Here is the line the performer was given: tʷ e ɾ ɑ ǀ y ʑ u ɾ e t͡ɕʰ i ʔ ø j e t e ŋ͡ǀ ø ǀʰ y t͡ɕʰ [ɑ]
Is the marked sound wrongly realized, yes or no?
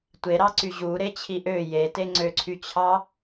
no